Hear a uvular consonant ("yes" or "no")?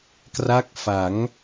no